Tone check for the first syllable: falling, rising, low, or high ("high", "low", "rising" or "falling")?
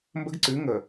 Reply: high